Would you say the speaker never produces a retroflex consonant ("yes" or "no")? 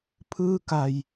yes